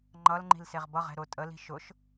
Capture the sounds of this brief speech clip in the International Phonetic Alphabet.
ŋ͡ǃ ʌ l ŋ͡ǃ i̤ l s e ʁ b ʌ ʁ ɛ̤ ɾ ʊ tʼ ə l i̤ ʃ ʊ ʃ

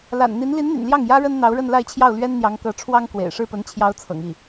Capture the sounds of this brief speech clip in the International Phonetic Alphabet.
l a̰˨˩ n n̪ i˧˥ n l i˧˥ n n̪ y̰˨˩ n l j ɑ˥˩ ŋ j ä˥ ɻ ə˥ n n̪ ɑ˧˥ ʊ̯ ɻ ə˥˧ n l a˥˧ ɪ̯ t͡ɕʰ j ɑ˥˩ ʊ̯ l ɥ ɛ˥ n n̪ j ɑ˧˥ ŋ k ɤ˧˥ ʈ͡ʂʰ w ɑ˥ ŋ k w ḛ˨˩ ɪ̯ ʂ ɻ̩˥˩ p ə˧˥ n t͡ɕʰ j ɑ˧˥ ʊ̯ t͡sʰ ɤ̰˨˩ ŋ i˥˩

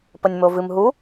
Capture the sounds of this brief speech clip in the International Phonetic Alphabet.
p ə nʲ m o v ɨ m ɦ u

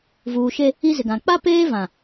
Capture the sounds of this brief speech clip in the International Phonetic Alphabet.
v uː˨ ʃ e˦ | i˦ z ɪ˨ ɡ ã˨ k͡p a˦ p eː˦ v ã˨

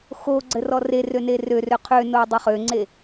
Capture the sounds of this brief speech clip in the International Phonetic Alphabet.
x o ɡ͡ǀ ɘ r ɔ r e r ø n e r ø r ø qʰ ø n o dˤ ø χ ø ŋ͡ǀ e

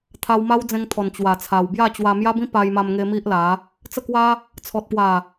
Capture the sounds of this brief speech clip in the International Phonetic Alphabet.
t̪ʰ a˧ w m a˦ w d͡z ẽ˧ ŋ t̪ʰ ɔ˨˩ n t͡ɕ w a˨˩ t͡sʰ a˨˩ w b j a˥˧ t͡ɕ w a˧ m j a˦ b ĩ˦ p a˧ j m a˧ m ŋ e˧ m i˦ ʔ l a˨˦ | t͡s ə˥˧ k w a˦ | t͡sʰ ɔ˨ t̚ p w a˨˩

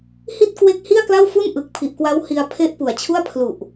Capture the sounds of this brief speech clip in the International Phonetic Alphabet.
h i˥˩ t̚ k w e˦˥ k̚ h i˥˩ a̯ k l a˥˩ w f u˥˩ n ʔ ɯ˨˩ k̚ pʰ i˨˩ ʔ k w a˦˥ w h i˧ a̯ pʰ e˦˥ ʔ p u˨˩ a̯ t͡ɕʰ u˥˩ a̯ pʰ l u˨˩ ʔ

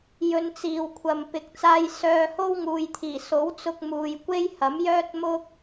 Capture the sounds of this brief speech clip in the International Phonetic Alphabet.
j ɵ˧ n t͡s iː˨ w kʷʰ ɐ˨ m p ɪ˨˥ k̚ t͡s aː˧ j s œː˧ h o˥ w ŋ uː˨ j t̪ʰ iː˨˩ s o˨˥ w t͡s ʊ˧ k̚ m uː˨ j kʷ e˥ j h ɐ˨˥ m j œː˥ t̚ m ʊ˥ k̚

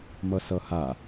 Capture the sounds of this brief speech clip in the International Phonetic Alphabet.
m ʌ s ʌ h a

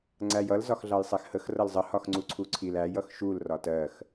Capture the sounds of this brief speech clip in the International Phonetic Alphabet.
ŋ͡ǀ æ j ʌ l z ɒ x ɮ ɑ j sˤ ɛ x h ə x r ʌ l zˤ ə h ɒ x ŋ͡ǀ u ǀʰ u ǀʰ i l æ j ʌ x ʃ u l r ɒ t ɜ x

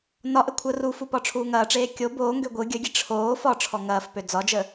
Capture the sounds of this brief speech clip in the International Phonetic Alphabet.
n ɒ ʔ ə kʷʰ əː r u f u p ɒ ʈ͡ʂʰ uː ŋ ɐː ʈ͡ʂ eː kʲ o b oː ŋ ɡ ø ɡʷ ɯ ɡʲ ə ɡʲ e ʈ͡ʂʰ oː f ɒ ʈ͡ʂʰ ɔ ŋ ɐː f p ø d͡z ɒ d͡ʒ ə

